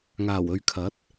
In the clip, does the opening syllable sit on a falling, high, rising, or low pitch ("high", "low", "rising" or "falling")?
low